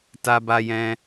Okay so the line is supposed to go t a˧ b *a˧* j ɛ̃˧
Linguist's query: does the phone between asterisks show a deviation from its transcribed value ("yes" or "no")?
no